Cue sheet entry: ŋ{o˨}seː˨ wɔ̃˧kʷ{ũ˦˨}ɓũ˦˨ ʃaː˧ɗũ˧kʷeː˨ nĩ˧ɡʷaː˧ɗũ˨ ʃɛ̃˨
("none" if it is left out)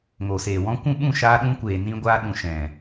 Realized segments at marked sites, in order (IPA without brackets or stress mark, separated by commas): o˨, ũ˦˨